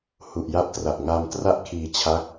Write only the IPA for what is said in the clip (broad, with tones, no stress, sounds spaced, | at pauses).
h u˨˩ ʔ j a˦˥ p̚ t r a˨˩ ʔ ŋ a˧ m t r a˥˩ ʔ kʰ iː˧ t͡ɕʰ a˦˥ k̚